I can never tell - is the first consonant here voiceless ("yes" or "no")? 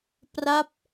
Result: yes